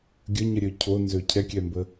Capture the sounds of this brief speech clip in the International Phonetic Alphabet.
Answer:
ɡʲ ə ɲ ə ɾʲ ø cʰ o n z ø cʰ ɛ kʲ ɛ m b ə

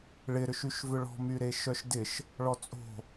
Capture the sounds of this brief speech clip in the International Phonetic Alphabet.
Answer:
ɭ ɪ ɾ ʏ ʃ y ʃ v ʏ ɭ ɔ̤ m y ɾ e ʃ œ ʃ d ɪ ʃ | ɭ ɔ t͡sʼ o̤

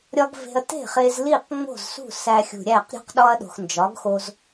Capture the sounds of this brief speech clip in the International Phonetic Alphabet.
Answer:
ɾʲ ɒ˥ ɡ v e̤˧ ɐ̯ t e̤˥˩ χ e˧ z l i˥˩ q ŋ͡m o̤˥˩ z s ṳ˥˩ s æ˧ xʲ ṳ˩ ɾʲ æ˥˩ q ɾʲ ṳ˥ q ɗ ɒ˥ ɐ̯ ɗ o̤˩ x n d͡ʒ ɒ˩˥ ɡ x o˧ z

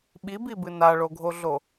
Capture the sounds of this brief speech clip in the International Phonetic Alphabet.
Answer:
ɓ i b i b ɨ n a ɭ o ɡʱ o ɮ o

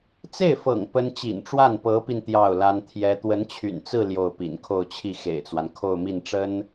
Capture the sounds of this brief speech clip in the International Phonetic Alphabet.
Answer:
t͡s e˥˩ ɪ̯ f ɤ̰˨˩ ŋ p ə˥ n t͡ɕ ḭ˨˩ n ʈ͡ʂ w a˥˩ n p ɤ˧˥ p i˧ n t̪ j ɑ˥˩ ʊ̯ l a˥ n t̪ʰ j ɛ˥ t̪ w ə˧˥ n t͡ɕʰ y̰˨˩ n t͡s ɹ̩˥˧ l j o˥˩ ʊ̯ p ḭ˨˩ n kʰ o˥˧ ʊ̯ t͡ɕʰ i˥˩ x ḛ˨˩ ɪ̯ t͡s w a˦ n kʰ o˥˧ ʊ̯ m i˥˩ n ʈ͡ʂ ə˥ n

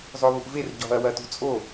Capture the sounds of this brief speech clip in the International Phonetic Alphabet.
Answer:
zˤ o β u ʔ v e r ɟ ɔ̤ ɐ̯ w ɐ t ṳ t͡sʼ o

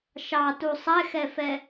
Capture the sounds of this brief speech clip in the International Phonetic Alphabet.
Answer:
ʃ ɑ t u sˤ ɛ x ɛ f ɛ

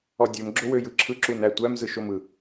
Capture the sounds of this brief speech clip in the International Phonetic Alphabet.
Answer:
ɔ dʲ ø m ɡ͡ǁ o w ø j ɯ ǁʰ ɯ ǁ u n æ tʷ æ m z ɯ ʃ o m ɯ

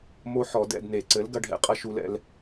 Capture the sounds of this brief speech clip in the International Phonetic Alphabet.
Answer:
m o˦ ħ ɔ˨˩˦ d ɛ̰˦˨ d n e˨˩˦ ǀ ɘ˨˥ l ɡ ɐ˨˥ ɖʱ ɛ̰˨˥ qʼ ɐ˦ ʃ u˦ l ɛ̰˦ l

